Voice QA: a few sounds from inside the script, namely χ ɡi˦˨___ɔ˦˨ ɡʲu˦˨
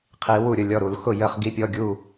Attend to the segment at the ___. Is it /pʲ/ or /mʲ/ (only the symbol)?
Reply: pʲ